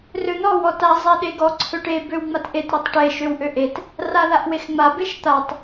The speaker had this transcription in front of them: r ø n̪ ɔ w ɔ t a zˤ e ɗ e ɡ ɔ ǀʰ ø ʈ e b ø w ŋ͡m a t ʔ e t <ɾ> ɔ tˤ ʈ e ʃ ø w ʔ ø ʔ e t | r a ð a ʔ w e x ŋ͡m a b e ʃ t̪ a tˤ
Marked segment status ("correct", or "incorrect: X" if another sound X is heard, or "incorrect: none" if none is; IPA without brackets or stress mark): correct